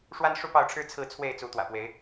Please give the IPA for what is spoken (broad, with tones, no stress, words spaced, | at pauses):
ʂwa˦nʂu˥˨pɑ˥˨ʊ̯ʈ͡ʂʰɻ̩˦ t͡sʰɹ̩˥˨t͡sʰwe˥˨ɪ̯ t͡su˨˦t̪wä̰˨˩pwe˨˦ɪ̯